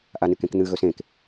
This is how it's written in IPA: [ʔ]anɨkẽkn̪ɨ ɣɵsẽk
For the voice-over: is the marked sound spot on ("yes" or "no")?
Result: yes